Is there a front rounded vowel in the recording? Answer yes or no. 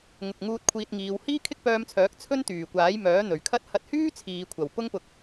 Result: yes